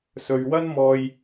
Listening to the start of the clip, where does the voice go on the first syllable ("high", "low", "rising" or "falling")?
low